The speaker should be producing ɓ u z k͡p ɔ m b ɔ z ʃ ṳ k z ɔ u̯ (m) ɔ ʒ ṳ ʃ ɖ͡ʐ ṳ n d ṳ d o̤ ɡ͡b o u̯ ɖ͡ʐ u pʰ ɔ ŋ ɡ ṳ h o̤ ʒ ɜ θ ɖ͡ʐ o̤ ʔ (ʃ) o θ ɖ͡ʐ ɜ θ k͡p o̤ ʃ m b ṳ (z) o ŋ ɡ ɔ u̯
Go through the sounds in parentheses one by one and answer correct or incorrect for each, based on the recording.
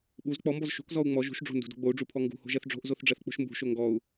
incorrect, incorrect, incorrect

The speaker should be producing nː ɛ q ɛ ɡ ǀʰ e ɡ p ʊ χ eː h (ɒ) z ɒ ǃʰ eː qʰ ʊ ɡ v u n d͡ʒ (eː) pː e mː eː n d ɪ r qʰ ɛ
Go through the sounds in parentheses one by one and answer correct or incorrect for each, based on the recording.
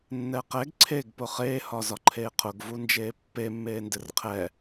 correct, correct

